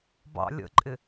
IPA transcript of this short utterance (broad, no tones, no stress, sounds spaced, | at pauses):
b ɑ̰ lʲ ə̰ ǃʼ ɪ